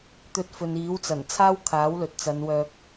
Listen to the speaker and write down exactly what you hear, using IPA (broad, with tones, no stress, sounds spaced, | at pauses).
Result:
t̪ ɵ˧ t̚ f ɵ˨ n iː˨˥ w t͡s ɐ˨˩ n t͡sʰ aː˥ w kʰ aː˨˥ w l ɵ˨ t̚ t͡s ɐ˨˧ n w œː˧ k̚